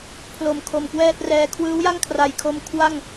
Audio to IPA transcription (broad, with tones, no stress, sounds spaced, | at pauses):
pʰ l o˨˩ m kʰ o˨˩ m k w ɛː˥˩ t̚ r ɛː˧ kʰ w ɯː˦˥ w j a˥˩ ŋ kʰ r a˨˩ j kʰ o˦˥ m kʰ w a˥˩ ŋ